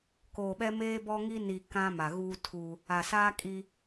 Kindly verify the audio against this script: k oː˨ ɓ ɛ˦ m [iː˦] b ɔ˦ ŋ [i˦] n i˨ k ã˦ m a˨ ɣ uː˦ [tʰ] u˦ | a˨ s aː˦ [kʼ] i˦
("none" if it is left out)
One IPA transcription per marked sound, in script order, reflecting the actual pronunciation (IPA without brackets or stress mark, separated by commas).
eː˦, i˦, tʰ, kʼ